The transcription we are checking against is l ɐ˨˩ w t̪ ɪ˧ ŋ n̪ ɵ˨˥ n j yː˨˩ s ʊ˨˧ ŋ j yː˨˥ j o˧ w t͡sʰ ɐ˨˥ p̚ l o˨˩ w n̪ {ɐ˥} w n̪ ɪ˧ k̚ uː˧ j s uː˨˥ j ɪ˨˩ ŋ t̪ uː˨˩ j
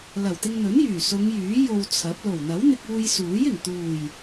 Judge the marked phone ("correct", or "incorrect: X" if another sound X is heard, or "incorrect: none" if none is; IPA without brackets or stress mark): incorrect: ɐ˨˥